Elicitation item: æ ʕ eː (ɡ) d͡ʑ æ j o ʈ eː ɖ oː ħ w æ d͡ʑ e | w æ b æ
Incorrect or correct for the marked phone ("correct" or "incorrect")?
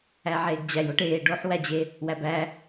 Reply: correct